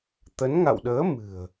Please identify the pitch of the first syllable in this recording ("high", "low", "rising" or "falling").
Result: rising